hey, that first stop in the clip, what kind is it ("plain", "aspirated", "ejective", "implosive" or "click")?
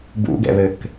plain